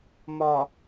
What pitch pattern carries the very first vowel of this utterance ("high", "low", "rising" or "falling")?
low